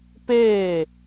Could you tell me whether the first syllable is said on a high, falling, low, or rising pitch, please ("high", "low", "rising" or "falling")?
falling